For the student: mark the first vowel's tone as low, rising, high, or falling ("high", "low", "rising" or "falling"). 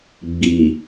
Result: low